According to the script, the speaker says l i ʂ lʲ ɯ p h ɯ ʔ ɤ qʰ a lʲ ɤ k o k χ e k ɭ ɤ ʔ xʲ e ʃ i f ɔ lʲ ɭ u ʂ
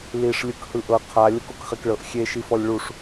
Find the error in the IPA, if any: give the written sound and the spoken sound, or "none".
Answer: p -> k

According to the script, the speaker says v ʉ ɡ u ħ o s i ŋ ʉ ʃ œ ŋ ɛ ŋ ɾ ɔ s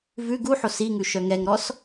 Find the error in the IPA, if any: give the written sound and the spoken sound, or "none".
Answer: none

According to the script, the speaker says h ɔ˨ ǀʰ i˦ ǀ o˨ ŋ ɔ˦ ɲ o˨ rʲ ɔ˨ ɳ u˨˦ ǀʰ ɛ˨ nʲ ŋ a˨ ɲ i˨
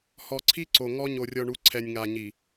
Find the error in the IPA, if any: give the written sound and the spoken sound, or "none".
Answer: none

